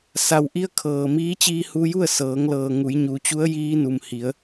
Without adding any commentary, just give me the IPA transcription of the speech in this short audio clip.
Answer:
sa˩wʔi˧ə̯ kʰɤː˩miː˧˥t͡ɕiː˧ hu˧ju˥˨ə̯sɤː˩˧ŋlɤː˩ ŋu˩˧jɲu˩˧ t͡ɕu˧˥ə̯jiː˧nu˩m hi˩˧ə̯

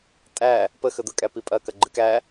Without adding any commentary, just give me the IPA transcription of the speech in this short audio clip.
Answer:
tʼæ | pə xəd̪əkʼæ pipʼɐ kɐɡ͡ǃɨkæ

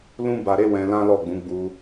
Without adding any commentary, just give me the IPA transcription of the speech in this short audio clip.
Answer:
lũ˦ba˧ɾe˦ wɛ̃˧lã˦lɔ˦˨ɡ͡bũ˨˦ ɡ͡bu˧

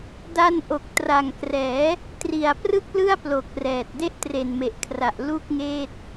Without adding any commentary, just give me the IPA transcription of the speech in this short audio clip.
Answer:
da˧nʔo˨˩k̚ tra˨˩ŋkrɛː˩˦ | tri˨˩a̯prɯ˥˩k̚lɯ˥˩a̯plo˨˩k̚ rɛː˨˩t̚ de˦˥ʔtre˨˩nme˨˩ʔkʰra˨˩ʔ lu˥˩k̚ŋeː˥˩t̚

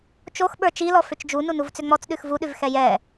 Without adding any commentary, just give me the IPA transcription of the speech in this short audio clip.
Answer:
t͡ʃoxɓə˞ t͡ʃilɔ fʏt͡ʃd͡ʒu nunuvt͡sʏŋ͡mɔt͡s ɗʉxvuɗʉv xɛjɛ

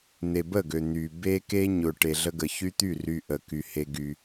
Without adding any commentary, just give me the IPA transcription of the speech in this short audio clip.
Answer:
n̪e˨bə˦˨ɡø˨ n̪y˨ be˦ke˦ɲʊ˨ ʈe˨ɮə˦ɡə˨ çy˦t̪y˦˨ ry˨ ʔə˨ ky˨he˦ ɡy˦

